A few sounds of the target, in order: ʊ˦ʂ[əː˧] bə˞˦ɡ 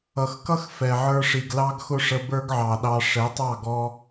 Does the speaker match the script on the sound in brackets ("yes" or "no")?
no